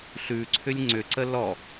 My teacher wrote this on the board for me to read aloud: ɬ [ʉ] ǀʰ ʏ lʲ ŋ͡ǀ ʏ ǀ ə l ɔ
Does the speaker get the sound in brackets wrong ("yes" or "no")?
no